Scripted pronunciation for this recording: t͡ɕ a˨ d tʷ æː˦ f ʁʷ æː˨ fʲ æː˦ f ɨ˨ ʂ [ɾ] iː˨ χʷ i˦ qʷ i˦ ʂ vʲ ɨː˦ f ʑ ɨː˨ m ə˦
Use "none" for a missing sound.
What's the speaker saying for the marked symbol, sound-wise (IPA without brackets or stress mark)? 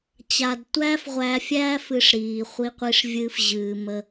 ɾ